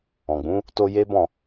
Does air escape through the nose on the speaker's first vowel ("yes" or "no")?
yes